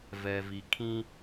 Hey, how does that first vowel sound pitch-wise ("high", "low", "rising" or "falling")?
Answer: low